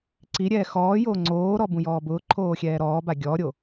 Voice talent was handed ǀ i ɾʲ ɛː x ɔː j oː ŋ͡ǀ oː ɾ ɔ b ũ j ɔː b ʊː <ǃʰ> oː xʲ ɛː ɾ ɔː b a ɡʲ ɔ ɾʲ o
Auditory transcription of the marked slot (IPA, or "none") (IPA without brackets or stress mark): ǃʰ